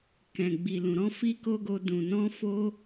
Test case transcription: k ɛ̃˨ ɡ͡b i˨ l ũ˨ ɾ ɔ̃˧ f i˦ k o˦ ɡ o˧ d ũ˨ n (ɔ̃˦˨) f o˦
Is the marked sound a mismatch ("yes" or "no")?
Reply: yes